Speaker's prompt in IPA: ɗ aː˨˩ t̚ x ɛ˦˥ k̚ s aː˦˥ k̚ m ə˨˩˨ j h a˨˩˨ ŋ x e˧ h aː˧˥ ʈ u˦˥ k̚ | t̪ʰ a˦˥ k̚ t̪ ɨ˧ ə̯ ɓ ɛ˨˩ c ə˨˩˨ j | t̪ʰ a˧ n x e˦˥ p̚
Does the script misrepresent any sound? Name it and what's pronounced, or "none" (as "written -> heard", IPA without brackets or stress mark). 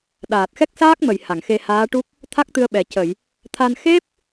none